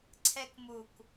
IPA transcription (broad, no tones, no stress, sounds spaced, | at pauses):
ǀʰ ɛ k m u k